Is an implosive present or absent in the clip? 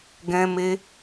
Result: absent